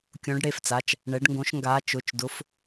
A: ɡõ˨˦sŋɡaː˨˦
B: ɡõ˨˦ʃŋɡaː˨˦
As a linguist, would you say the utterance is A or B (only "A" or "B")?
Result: B